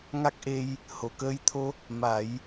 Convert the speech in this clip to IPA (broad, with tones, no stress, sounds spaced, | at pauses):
ŋ a˦˥ k̚ ʔ e˧ j | h o˨˩˨ k əː˧ j t̪ʰ o˧ | m a˨˩˦ j